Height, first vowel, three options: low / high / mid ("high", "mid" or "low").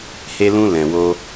mid